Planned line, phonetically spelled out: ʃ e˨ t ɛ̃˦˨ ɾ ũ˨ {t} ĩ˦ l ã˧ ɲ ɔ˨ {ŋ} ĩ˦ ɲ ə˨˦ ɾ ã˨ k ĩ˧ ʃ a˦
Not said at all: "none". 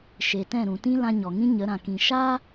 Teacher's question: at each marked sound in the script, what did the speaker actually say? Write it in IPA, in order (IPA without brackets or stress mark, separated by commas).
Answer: t, ŋ